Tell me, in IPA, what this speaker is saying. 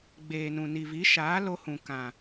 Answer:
ɡ͡beː˨nũ˨ ni˨vi˨˦ʃaː˨˦lo˧ hũ˨kã˨

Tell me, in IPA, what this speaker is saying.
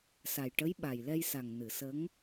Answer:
sa˨˩jʈə˧˥j ɓa˨˩jlɛ˧jsa˨˩ŋ nɨ˨˩˨sə˧˥ŋ

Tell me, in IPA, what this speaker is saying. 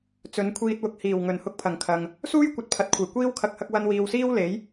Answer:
t͡sɵ˨˧nkʷʰiː˧t̚ wʊ˨k̚ hiː˨˩w ŋɵ˨˩nhʊ˧k̚pʰɐ˨˩ŋkʰɐ˨ŋ | suː˥jkʷɐ˨t̚pʰɐ˨t̚kʷʰɐ˨˩j kʷiː˥wkʰɐ˧k̚hɐ˧k̚ wɐ˧nwiː˨wsiː˥w le˨˥j

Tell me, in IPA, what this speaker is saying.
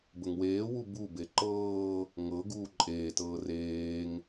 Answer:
bəŋweːwu bube ǃɤː | ŋɤ ɡuːǃʼeːtɤː reːŋ

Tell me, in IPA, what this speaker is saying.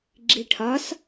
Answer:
ɡ͡ǁiʈʰɒs

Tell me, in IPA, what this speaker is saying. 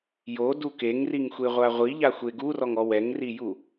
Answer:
jodu keŋriŋxʷeʁʷa ʁʷiʎaxʷe ɡurɔŋɔ wɛŋriju

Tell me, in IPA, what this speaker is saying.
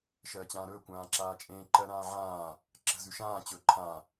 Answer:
ʃɜːt͡ɕãːɾɵː kʷãːǁaːt͡ʃʼẽː ǃɜɾãːʕãː | ǁə̤ zʉʃãː t͡ɕɵːǃʰã

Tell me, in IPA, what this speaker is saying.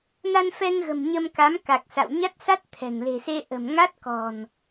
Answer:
na˧nfɛ˧ŋɣə̤˨˩m ɲə˧mka˨˦m ka˨˩k̚sa̰˧˨w ɲa˦˥t̚sa˦˥t̚t̪ʰɛ̤˨˩ŋ le̤˨˩se˧ ʔə̤˨˩m ŋa˦˥t̚kɔ̤˨˩n

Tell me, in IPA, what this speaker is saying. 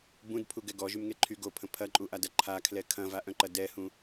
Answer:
bũdpʰuɡɛ ɡɔʒymŋe ǃʰy ɡopʰə̃ pʰɐǃʼuʔadɐ ǃʰakʰlɛ kʰɐ̃vaʔœ̃ǃɐ dɛhũ

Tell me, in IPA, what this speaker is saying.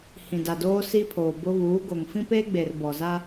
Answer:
hĩ˨da˨doː˦ si˦pʰoː˨bʊ˦ βuː˨˦ɡo˨ŋ fĩ˦peː˦ɡ͡be˨r bɔ˨za˦

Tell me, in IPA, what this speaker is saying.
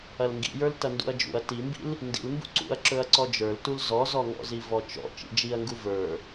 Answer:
ɐlŋɡḭjə˞l tɐndṵɐ̯d͡ʒṵɐ̯ timbḭl | ndḭlmbṵ ǀṵɐ̯ǁɵɐ̯ ǀɔd͡ʒə˞ltul zɔzɔŋɔ̰zi vɔt͡ʃɔ̰ t͡ʃḭd͡ʒiɐ̯ŋɡu və˞

